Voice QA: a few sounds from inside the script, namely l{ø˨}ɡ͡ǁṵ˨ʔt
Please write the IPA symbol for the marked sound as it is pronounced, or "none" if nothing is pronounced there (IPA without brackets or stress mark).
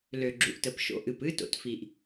ø˨